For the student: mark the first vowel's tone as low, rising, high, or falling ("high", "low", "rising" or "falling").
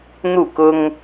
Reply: falling